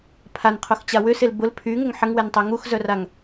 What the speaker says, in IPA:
pʰ a n qʰ o x t͡ɕ a w ʏ s e l b ʊ l pʰ y ŋ ə ŋ ħ ə ŋ w ɛ n tˤ o ŋ u x z œ r a ŋ

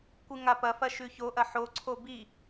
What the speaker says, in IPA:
kʷ ɨ ŋ a p ɐ f ɐ ʃ ʉ ç o ʔ ɐ ħ o ǀʰ o b i

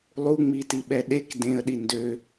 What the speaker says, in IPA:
lˠ u ŋ͡m i t i ɓ ɛ ɗ e k d ẽ ə̯ ɗ i n d ø

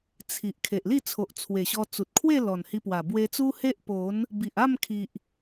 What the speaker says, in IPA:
t͡sʰ i˨ ʔ kʰ e˨ ʔ l i˥˧ t͡sʰ o˨ ʔ t͡sʰ w e˨˩ ɕ ɔ˧ t͡s u˨ t̚ kʰ w e˥˧ l ɔ˨˩ n h i˧ p w a˨˩ b w e˧ t͡s u˦ h e˦ ʔ p o˨˦ n | b i˨ ʔ a˥˧ m kʰ i˨ ʔ

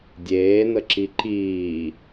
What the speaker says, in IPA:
dʲ eː n ə ǁ i ǃ iː

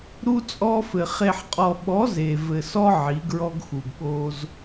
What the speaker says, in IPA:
ɾ u˦ t͡sʼ ɔ˦ f ɘ˨ χ e˨ ħ qʼ ɔ˨ ɓ ɔ˨˦ z e˨ v ɘ˨ s ɔ˦ ʕ i˨˦ ɡ ɹ ɔ˦ ɡ x u˨ ɡ ɓ o˦ z

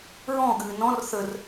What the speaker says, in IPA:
ɹ ɔ̃ ɠ ɨː n ɔ̃ r θ ə r

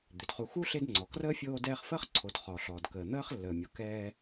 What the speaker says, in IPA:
d̪ ʏ˩ d χ u˨ x u˥ ɬ e˦ d ŋ͡ǀ ɔ˩ k r əː˥ fʲ oː˦ d ɛː˦ χ f əː˥ χ ǀʰ o˨ d χ ɔ˩ ɬ ɔː˩ d k əː˩ n̪ əː˥ χ lː əː˩ mʲ o˩ k ɛː˦

